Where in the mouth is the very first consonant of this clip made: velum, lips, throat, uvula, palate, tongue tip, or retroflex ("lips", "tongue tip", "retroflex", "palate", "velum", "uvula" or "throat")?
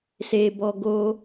tongue tip